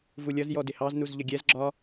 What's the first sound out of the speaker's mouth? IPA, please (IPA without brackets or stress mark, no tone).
v